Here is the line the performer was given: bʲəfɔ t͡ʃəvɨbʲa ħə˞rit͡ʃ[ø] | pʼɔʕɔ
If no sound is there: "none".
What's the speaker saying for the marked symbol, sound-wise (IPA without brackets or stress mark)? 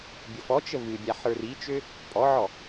ø